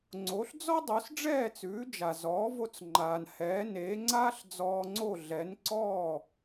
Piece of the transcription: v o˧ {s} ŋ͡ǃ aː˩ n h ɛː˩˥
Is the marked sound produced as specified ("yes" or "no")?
no